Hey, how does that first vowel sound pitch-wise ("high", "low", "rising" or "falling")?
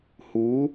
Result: rising